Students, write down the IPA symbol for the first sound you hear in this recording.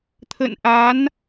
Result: t̪ʰ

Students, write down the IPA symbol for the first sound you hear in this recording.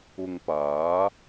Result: ʊ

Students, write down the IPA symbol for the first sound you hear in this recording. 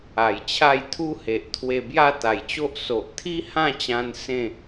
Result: a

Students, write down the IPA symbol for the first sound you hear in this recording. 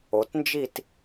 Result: o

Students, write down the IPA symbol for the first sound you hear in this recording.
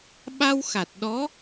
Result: ɓ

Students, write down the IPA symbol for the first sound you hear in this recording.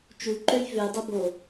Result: t͡ʃ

